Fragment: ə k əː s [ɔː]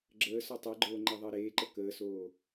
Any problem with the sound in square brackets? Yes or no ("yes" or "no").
yes